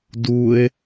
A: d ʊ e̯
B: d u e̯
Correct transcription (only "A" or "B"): B